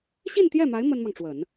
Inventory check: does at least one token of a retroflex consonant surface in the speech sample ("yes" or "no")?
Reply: yes